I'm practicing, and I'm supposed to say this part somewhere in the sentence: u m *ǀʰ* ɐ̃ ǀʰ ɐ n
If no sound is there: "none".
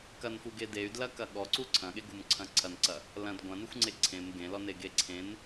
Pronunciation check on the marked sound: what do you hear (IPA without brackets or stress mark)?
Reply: ǀʰ